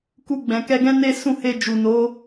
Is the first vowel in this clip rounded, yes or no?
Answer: yes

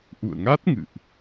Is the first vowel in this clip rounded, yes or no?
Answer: yes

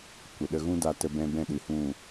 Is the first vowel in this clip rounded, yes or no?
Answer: no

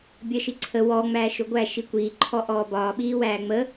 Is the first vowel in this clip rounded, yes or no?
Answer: no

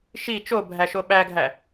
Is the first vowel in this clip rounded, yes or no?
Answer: no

